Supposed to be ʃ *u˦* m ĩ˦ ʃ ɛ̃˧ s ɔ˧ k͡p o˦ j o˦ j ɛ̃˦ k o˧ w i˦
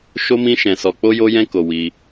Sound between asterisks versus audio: incorrect: o˦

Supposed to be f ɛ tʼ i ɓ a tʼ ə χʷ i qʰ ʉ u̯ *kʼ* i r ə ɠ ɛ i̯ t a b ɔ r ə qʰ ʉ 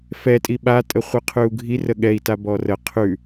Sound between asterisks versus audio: incorrect: ɡʱ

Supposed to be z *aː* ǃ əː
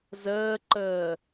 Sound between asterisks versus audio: incorrect: əː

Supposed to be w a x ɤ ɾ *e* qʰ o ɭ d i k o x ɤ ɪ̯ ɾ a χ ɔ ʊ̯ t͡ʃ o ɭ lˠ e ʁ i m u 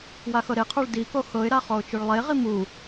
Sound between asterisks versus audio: correct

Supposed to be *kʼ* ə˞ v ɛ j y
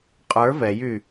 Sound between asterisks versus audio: incorrect: qʼ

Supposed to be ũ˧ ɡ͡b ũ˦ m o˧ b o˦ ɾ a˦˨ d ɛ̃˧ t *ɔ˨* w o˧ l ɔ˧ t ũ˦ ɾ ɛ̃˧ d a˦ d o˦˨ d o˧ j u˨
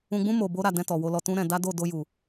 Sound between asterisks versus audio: correct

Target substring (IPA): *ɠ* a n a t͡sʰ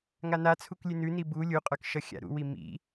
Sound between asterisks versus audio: incorrect: ŋ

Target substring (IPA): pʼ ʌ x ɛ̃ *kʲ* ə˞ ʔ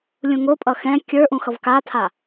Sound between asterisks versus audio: correct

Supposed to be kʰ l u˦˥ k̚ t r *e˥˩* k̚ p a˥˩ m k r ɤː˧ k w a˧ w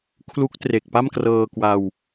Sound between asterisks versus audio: incorrect: e˨˩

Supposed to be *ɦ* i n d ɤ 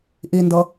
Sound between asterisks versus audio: incorrect: ʔ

